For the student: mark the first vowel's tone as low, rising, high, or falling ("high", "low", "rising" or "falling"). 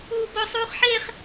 high